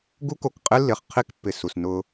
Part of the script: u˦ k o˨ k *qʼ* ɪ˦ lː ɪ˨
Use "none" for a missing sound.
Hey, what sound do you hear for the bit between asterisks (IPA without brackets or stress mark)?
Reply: qʼ